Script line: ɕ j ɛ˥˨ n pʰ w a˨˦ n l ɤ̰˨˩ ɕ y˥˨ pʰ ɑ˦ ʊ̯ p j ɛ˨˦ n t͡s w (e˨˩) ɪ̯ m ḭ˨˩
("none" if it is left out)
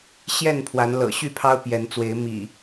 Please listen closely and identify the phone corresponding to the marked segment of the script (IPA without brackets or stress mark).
e˨˦